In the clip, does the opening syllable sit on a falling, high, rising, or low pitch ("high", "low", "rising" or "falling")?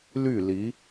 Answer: falling